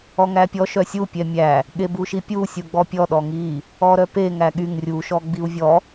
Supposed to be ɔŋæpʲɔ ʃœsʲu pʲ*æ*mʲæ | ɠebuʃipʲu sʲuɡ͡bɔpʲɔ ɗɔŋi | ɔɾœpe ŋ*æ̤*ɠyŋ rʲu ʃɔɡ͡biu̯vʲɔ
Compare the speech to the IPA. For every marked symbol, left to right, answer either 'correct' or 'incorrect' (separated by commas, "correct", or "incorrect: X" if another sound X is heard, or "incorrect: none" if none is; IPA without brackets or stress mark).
incorrect: ɛ, incorrect: æ